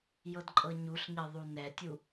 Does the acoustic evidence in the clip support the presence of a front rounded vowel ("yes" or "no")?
no